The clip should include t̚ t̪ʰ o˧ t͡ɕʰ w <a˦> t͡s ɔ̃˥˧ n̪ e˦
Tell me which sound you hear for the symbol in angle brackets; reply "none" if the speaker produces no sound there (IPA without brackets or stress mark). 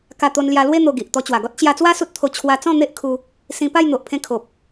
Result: a˧